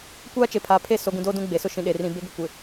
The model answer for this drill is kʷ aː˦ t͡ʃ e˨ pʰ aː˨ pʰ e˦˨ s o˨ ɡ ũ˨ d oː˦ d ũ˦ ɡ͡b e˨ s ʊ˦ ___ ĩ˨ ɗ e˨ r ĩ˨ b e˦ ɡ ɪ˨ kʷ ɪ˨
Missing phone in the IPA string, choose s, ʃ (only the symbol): ʃ